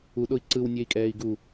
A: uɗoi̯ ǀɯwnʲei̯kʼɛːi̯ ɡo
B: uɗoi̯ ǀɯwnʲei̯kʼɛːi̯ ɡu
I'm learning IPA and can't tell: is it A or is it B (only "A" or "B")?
B